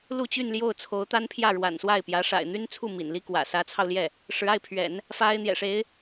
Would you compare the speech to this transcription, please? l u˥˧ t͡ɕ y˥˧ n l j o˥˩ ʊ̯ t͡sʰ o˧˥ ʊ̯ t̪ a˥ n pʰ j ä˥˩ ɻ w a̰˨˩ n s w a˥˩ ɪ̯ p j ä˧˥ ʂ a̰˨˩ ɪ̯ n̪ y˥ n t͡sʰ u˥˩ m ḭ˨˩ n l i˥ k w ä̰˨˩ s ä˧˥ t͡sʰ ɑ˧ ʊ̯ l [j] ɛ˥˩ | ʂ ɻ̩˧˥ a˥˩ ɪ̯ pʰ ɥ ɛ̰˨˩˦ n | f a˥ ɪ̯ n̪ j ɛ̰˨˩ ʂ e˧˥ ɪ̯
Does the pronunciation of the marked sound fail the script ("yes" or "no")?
no